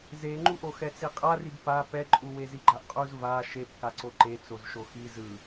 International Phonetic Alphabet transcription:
zeŋ͡ǃuʔo xɛt͡siqʼarib pa pɛǃʼuwe ziɡ͡ǃaʔqʼuz va ʃep kaǀoǃe t͡sozʃoxi zɯ

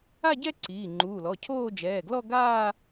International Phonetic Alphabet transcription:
a˥˧ɟɛ˥˧ ǀiː˩˧˩ŋ͡ǃuː˩˧˩lɔ˩˧˩ cʰoː˥˧d͡ʒɛː˩˧˩ ɡlɔ˥˧ɡaː˥˧

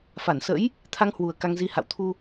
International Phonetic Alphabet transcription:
fa˧˩nsə̰˧˥j | t̪ʰa˧ŋhwu˨˩ə̯ ka˧ŋzi˧ ha̰˧˨wt̪ʰu˧

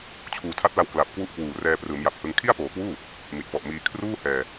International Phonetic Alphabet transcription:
t͡ɕʰuː˨˩tʰa˦˥t̚la˧w kla˨˩p̚kwu˦˥ʔkwuː˨˩ rɛː˧prɯː˩˦mja˨˩p̚hɯ˧ŋ kʰi˥˩a̯poː˨˩kwuː˥˩ | mi˨˩t̚pɔ˨˩ʔmiː˧ kʰruː˥˩hɛː˧

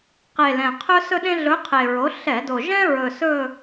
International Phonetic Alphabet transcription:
qe˨˩ lɛ̃˨˩qʰɵ˥sɵ˥ɗẽ˥ ɮɵ˧˥qʰe˨˩ɹo˩˥ ɬɛ˧˩˧do˨˩ ʒɛ̃˥ɹɵ˨˩ sɵ˦˨

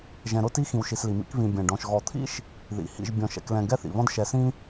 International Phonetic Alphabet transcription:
ʒɛ̃˨ɾʊ˦ti˦ xĩ˨wʃi˨sli˩mḭ˦k βĩ˨bʲɛ̃˩ɖɔ̃˨ʃ ɣɔ˨t̪ʰḭ˥ʃ | ðḭ˩ hḭ˨ʒ bʲɔ̃˨ʃɛ̰˨klɛ̃˨ ɡɛ˥θḭ˩βɔ̃˥d ʃɛ˨sĩ˥

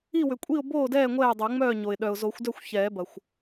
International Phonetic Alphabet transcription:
i˥˨wʏ˩kʷʼi˥˨ʊ̯ boː˥˨dɛː˥˨ ŋʷɛː˥˨dˤo˨˩˦ŋ͡mœː˥˨ɲo˩ɪ̯ ɗœ˩ʊ̯zo˨˩˦xʷdœ˥˨xʷ çɛː˨˩˦bɐ˩xʷ

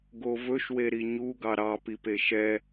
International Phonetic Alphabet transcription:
ɡovɵʃwe ɾiɲu ɡɑɾɑpipe ʃɛ

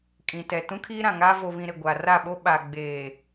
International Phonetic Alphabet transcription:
kʼĩ˨tɛ˨ tũ˦kʰiː˦ɾã˨ŋaː˦ vo˨βĩ˨ ɾɪ˨ɡʷa˨ra˦˨ɓo˦ ɓa˨ ɡ͡beː˨

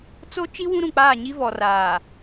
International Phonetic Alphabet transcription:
t͡so˦ t͡ʃi˦ wũ˦ɾũ˨k͡paː˦˨ɲi˦ vɔ˨raː˨

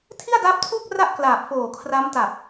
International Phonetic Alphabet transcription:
tʰi˥˩a̯daː˦˥p̚tʰuː˥˩k̚ ra˥˩ʔklaː˨˩p̚ foː˨˩ kʰra˦˥mta˨˩p̚

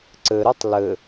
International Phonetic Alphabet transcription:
ǀɘɾɨtˤ lɘ

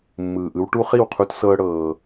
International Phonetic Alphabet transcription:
mːɯː˨ʔɯ˦w ʈu˦χi˦˨wqʰu˦tsɤː˦ ɽɤː˦

